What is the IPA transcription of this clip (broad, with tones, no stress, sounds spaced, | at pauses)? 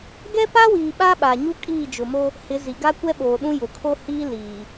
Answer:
ɡ ɛ˦ p a˦ w iː˨ ɓ a˦ ɓ a˨ ɲ u˦ kʼ iː˦˨ d͡ʒ ʊ˨ m o˦ | h ɪ˨˦ z i˨ ɡ a˦ kʷ ɛ˦ ɓ oː˨ ɗ ũ˦ j ʊ˨ kʰ o˦ h iː˦ l iː˨